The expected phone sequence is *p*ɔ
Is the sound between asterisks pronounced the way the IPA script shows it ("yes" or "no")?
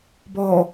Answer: no